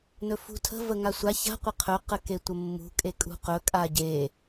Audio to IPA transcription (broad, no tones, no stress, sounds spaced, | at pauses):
n ɵ f ṳ tʰ ə̤ v ə ŋ a sʷ a ç a̤ qʷ ə qʰ ɵ q ə k e tʷ ə mː ṳ kʼ e kʼ ṳ q ɵ kʼ a ɟ e